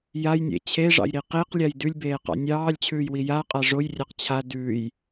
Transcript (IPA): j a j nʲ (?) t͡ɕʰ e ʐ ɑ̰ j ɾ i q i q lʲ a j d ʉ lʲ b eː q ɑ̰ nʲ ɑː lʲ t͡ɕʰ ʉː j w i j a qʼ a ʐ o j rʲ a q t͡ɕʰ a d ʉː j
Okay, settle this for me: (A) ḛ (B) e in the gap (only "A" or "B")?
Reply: A